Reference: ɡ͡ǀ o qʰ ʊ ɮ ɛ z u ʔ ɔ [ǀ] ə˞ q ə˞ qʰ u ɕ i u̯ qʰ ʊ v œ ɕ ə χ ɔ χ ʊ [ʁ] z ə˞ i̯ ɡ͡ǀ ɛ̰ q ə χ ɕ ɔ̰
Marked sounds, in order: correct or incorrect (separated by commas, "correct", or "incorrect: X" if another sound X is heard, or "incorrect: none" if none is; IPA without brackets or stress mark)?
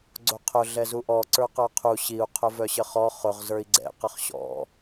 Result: correct, correct